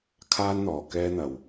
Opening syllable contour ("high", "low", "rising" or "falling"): high